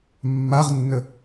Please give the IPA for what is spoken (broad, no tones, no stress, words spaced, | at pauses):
mːaʁnːə